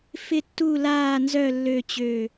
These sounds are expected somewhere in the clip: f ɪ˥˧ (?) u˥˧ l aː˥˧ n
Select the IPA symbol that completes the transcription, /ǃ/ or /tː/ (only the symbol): tː